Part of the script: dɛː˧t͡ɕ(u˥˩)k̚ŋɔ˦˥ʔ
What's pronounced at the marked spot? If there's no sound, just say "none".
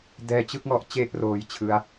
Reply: ɯ˥˩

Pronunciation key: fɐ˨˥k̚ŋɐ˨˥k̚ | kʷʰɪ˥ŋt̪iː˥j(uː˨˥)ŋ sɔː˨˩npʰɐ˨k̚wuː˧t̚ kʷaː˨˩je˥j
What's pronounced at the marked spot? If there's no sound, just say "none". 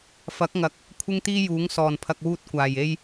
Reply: uː˨˥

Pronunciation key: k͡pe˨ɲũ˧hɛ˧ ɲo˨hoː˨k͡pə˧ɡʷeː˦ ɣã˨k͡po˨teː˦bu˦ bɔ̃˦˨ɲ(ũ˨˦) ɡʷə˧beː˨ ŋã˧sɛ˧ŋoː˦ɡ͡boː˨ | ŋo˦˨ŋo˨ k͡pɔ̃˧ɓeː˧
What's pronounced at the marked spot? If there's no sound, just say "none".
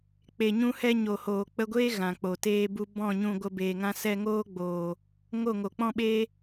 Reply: ũ˧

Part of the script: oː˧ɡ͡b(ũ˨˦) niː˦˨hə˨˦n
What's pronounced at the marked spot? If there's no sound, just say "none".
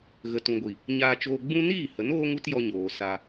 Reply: ũ˦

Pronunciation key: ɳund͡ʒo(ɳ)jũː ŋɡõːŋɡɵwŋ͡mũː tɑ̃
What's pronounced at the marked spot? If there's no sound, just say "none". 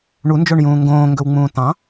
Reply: ɳ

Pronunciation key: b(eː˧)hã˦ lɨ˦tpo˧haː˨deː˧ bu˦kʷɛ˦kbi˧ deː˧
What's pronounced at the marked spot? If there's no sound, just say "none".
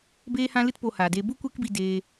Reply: eː˦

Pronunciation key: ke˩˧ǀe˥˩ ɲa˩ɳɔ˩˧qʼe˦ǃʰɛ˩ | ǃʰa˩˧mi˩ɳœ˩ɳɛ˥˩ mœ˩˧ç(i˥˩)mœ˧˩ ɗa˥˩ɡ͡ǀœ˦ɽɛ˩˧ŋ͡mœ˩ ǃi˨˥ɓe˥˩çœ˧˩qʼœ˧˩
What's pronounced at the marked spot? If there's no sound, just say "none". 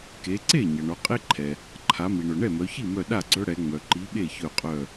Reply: i˥˩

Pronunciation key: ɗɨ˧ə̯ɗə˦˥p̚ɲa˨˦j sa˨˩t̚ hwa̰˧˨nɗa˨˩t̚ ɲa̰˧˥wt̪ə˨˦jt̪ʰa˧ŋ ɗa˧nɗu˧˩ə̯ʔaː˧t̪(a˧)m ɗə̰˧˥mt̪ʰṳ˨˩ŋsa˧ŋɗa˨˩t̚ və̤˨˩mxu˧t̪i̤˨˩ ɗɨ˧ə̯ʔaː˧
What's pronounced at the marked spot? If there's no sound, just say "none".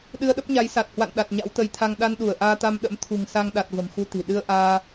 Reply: a˧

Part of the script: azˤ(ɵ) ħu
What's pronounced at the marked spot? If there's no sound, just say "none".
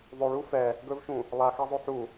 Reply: ɵ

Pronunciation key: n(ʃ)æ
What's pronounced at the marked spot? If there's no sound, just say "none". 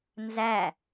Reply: z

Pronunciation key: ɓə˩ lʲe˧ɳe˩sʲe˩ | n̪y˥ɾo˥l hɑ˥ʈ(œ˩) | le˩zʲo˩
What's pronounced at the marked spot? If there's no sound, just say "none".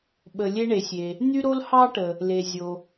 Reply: ə˩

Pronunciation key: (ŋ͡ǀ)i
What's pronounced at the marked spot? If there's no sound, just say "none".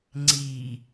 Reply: ŋ͡ǀ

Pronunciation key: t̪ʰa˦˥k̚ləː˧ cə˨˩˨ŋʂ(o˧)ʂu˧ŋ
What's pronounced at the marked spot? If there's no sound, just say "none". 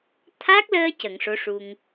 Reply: o˧˥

